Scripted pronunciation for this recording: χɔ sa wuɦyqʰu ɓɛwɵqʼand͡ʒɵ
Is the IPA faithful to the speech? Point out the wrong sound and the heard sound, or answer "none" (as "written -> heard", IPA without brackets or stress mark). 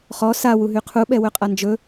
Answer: none